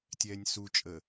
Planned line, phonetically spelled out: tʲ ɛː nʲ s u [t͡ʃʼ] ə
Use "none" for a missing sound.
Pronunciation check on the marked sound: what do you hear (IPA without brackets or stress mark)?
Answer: t͡ʃʼ